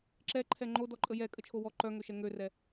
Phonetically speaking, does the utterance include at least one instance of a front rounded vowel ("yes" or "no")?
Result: yes